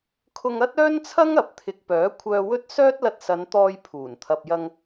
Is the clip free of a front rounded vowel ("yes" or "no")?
no